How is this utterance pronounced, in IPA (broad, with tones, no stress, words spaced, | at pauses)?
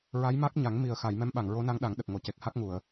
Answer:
ɹa˧˥jma˦˥k̚ɲa˨˩˦ŋ mi˨˩ə̯ xa˨˩˨j mɛ˧˥mɓa˨˩˨ŋ ɹo˧˥na˧˥ŋɗa˨˩˦ŋɗə˨˩k̚ ŋo˨˩˨ce˨˩k̚ha˦˥k̚ŋu˨˩˨ə̯